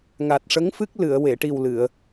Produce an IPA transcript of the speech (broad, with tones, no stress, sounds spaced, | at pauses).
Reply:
ŋ a˨˩ t̚ ʂ ə˧˥ ŋ f ɨ˦˥ k̚ l ɨ˨˩˨ ə̯ w e˨˩˨ ʈ i˨˩ w l ɨ˨˩˨ ə̯